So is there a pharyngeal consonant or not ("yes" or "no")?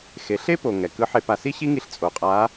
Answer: yes